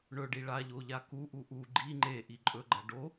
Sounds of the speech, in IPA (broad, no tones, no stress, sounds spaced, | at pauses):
ɳ ɵ ɖ i ɭ a ʎ o ʎ a k u ʔ u ʔ u ɡ͡ǃ i ŋ͡ǃ e ʔ i ǃʼ ɵ ɡ͡ǃ ɐ ɖ o